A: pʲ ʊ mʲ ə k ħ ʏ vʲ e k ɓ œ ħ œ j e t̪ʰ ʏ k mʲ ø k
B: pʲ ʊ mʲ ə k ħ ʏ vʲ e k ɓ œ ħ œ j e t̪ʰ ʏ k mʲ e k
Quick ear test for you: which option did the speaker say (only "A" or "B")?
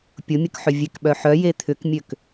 A